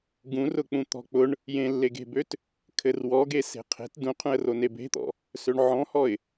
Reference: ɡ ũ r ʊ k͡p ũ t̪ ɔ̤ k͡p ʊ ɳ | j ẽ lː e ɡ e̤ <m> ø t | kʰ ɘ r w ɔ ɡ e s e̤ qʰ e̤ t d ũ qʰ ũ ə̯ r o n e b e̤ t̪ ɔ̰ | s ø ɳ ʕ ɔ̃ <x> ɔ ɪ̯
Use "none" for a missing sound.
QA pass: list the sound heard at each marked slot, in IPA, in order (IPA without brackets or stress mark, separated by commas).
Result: b, h